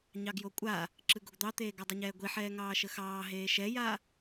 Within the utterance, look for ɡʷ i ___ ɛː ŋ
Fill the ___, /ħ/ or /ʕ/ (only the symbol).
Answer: ħ